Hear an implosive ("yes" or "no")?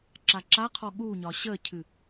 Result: yes